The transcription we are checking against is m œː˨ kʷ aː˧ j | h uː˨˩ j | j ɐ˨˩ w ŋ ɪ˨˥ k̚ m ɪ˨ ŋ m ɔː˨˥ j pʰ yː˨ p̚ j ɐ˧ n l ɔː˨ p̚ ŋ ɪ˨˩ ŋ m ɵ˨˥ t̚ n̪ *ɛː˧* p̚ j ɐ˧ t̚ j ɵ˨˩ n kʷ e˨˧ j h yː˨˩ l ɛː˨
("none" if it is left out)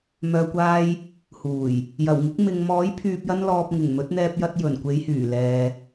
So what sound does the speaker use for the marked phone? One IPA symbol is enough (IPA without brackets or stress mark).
ɛː˧